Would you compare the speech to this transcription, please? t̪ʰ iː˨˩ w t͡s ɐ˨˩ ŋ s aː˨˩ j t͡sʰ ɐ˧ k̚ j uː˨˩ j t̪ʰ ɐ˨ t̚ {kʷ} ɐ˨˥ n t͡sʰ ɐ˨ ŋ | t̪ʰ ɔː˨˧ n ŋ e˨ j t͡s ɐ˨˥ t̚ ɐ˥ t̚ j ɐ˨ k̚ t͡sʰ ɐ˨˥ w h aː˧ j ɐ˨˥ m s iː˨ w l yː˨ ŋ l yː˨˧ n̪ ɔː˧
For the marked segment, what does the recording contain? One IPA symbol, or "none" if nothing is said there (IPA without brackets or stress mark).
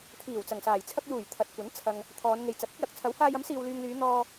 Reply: kʷ